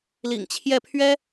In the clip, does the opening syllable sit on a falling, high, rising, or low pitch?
low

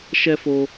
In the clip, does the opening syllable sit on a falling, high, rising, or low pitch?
high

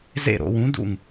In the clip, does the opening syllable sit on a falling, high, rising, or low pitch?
falling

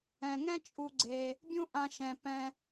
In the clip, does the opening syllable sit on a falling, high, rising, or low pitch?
low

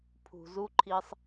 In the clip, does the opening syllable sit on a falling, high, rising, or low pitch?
low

